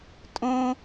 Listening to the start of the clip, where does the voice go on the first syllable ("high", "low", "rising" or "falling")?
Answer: high